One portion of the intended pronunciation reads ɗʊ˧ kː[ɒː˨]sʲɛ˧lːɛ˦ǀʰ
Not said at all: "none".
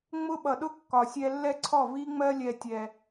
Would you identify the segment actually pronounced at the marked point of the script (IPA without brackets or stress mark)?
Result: ɒ˨